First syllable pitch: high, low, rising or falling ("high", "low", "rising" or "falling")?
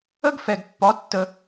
high